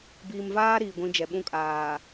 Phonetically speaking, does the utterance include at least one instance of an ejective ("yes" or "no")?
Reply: yes